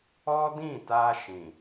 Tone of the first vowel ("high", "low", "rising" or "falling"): high